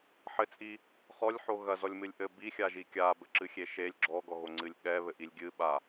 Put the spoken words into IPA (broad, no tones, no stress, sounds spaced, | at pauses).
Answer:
ħ ɘ t͡sʼ i | χ ɔ lʲ ħ o ɣ ɐ z ɔ lʲ m ɨ lʲ ʔ ɘ b i xʲ a ʒ i kʲ a b ɘ ǁ ɨ xʲ e ʃ e lʲ ɡ͡ǁ ɔ ɡ ɔ ɣ o ŋ͡ǀ ɨ lʲ ɠ ɛ β ɘ ʔ i lʲ ɡʲ ɨ ɓ a